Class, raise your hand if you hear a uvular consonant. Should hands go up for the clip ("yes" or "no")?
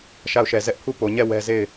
no